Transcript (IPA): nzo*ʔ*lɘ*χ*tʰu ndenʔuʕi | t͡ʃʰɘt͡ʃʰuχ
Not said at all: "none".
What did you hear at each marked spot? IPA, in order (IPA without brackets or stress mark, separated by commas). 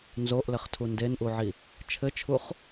ʔ, χ